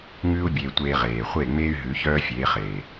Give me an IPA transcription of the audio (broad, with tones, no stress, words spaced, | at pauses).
ŋʉː˦u̯bʲeː˧tʷeː˧ ʁeː˨χʷe˦˨ŋ͡meː˦y̯ ɦʉ˨˦çœː˦fʲeː˨˦χeː˨